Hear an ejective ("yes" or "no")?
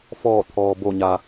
no